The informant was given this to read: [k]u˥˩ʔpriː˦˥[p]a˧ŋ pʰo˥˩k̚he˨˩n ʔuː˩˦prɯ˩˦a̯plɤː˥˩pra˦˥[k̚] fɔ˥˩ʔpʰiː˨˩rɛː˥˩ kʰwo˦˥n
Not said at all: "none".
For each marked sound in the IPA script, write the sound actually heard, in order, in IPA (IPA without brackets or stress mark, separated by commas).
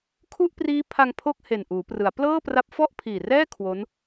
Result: kʰ, pʰ, p̚